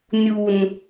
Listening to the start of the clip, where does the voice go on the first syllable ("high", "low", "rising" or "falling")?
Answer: low